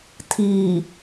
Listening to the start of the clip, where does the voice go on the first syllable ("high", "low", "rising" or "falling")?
low